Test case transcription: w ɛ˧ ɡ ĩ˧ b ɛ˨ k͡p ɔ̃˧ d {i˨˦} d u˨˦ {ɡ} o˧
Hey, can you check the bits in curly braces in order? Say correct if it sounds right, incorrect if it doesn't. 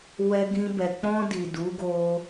incorrect, correct

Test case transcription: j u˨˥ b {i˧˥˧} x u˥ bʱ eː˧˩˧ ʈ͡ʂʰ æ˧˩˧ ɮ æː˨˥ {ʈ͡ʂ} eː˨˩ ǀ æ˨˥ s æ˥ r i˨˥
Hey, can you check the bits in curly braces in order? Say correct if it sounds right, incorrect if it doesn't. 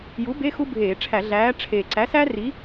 incorrect, incorrect

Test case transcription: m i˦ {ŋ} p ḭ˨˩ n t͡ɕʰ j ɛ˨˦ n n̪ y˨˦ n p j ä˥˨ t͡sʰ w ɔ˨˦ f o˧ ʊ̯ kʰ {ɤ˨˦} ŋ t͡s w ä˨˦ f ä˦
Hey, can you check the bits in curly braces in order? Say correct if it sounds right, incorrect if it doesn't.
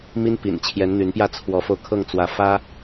incorrect, incorrect

